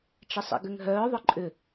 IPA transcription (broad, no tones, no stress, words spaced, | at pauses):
t͡ʃɪsˤḭɡʏŋɦœː ðˤʊǃʼʏ